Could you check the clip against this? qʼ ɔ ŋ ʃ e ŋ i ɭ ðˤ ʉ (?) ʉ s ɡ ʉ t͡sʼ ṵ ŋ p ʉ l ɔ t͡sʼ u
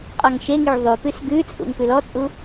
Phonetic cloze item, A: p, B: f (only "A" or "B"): A